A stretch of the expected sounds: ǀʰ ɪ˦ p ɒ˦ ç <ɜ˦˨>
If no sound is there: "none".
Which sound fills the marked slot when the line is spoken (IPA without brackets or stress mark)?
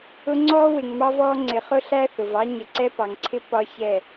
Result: ɛ˦˨